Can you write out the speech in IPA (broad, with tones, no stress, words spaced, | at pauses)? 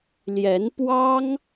ljɛ˧˥npwɑ˥ŋ